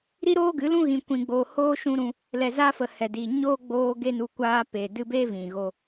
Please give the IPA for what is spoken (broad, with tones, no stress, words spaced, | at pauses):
ɾi˦ɾoː˦ɡɨ˨˦lũ˦ ɣĩ˧kʷĩ˧ɡ͡boː˧ hoː˦ʃũ˦ ɾũ˧ | lɛ˨za˧ fə˨ hɛ˨diː˨ ɲoː˦ɡ͡boː˧ ɡe˦nu˧ kʷaː˧pe˨ dɨ˧be˦ vĩ˨ɣo˧